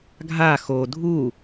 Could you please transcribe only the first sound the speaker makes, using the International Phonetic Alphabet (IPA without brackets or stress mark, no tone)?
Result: ɡʱ